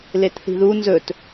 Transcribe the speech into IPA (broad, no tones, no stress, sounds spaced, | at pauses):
l e t θ i̤ ð u n z ɵ t